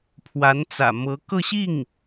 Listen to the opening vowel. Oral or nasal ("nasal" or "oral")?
oral